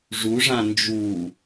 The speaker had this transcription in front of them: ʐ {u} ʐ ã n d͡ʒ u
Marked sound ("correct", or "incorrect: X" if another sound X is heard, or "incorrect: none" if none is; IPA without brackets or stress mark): correct